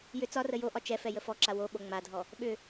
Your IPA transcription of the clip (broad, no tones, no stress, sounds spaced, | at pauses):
j ʏ t͡s ɒ r ə j o ʔ ɒ t͡ʃ ɛ f ɛ j ə f ɔ ǁ a w o ɓ o ŋ͡m a dʱ ɔ | ɓ ʏ